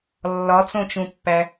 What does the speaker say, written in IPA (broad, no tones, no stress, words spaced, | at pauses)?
lːɒt͡sõt͡ʃũpːæ